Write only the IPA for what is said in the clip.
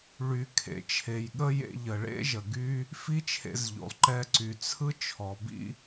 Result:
ɭy˩ kʰḛ˩t͡ʃʰe˩jɠə˥jḛ˧ ʎə˩ɭḛ˥ʒə˩ ɡy˥ | fi˥t͡ʃʰḛ˧zʎo̰˩lˠ ǃɛ˧ǀy˩t͡sʰɯ˥ t͡ʃʰɔ˩bḭ˥

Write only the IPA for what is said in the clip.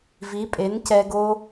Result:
vi˨˦pʼe˨˦ncɛ˧ɡo˦

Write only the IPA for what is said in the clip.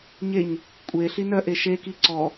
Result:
ɲeɲ | kʷʼe ɬinœʔe ʃeki ǀɔ

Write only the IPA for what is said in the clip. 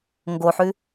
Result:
ŋɡoħʉ

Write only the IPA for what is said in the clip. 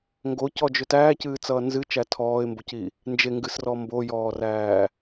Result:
ŋɡocɔd͡ʒʏ tæːcɨːt͡sʌː nzɨt͡ʃæ tʰɔːɪ̯mboci | nd͡ʒeŋɡɨsrɔ mbojɔːræː

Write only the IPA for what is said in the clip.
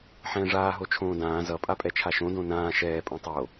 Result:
ħɛ̃ːʐaː ɦot͡ʃʰõːdãː zʌ pʼapʼɛt͡ʃʰaʃõ dõnãː ʃɛː pʼõtˤo

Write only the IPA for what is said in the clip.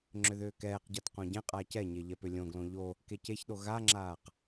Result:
ŋ͡ǁʏðʏːkɛːqɟat qõɟɛ̃qʼaːc ɛɲe ʎɛpʏlʲõɡlõ ʎo | keceçɗo ɣaŋ͡ǁaːq

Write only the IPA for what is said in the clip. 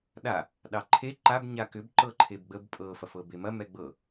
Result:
ɗa | ɗɑǃʰe ǃab ɲakʏb ǃɤǃʰebɡ͡bəb pʼɤ fɐfɤbemɐ mɛɡ͡bɤ

